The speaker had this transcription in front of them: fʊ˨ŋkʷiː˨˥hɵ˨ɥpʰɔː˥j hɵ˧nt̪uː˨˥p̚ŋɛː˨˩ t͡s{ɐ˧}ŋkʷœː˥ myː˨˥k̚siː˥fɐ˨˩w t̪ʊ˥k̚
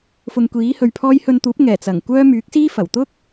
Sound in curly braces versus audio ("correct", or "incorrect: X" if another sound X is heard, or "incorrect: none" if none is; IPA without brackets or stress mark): incorrect: ɐ˨˩